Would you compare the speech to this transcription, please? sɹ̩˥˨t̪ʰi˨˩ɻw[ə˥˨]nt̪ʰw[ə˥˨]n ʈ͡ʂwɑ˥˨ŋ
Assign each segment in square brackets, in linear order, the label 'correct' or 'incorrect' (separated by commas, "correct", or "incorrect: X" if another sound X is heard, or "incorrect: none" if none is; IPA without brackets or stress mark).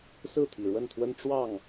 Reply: correct, incorrect: ə˦